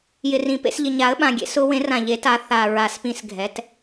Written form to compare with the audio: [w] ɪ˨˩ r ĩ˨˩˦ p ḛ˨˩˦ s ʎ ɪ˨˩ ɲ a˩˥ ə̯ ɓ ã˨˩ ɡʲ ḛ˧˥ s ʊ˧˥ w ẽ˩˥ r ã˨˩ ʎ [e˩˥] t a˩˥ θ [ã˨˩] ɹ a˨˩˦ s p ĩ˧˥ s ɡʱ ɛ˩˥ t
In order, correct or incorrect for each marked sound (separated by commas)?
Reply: incorrect, correct, incorrect